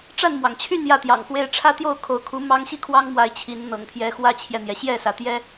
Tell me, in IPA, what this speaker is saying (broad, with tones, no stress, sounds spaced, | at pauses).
ʈ͡ʂ a˥˨ n m w ɑ˩ ŋ t͡ɕʰ y˥˨ n j ä˥˨ t̪ j ɑ̰˨˩ ŋ x w e˦ ɪ̯ ʈ͡ʂʰ ä˦ t̪ j o˥˨ ʊ̯ kʰ o˨˦ ʊ̯ kʰ u˨˦ m ɑ˦ ŋ ɕ i˥˨ kʰ w ɑ˦ ŋ m w a˨˦ ɪ̯ t͡ɕʰ i˨˦ n n̪ ɤ̰˨˩ ŋ t̪ʰ j ɛ˨˦ x w ä˦ t͡ɕʰ j ɛ˨ n̪ j ɛ˩ ɕ j ɛ˥˨ s ä˩ t̪ j ɛ˦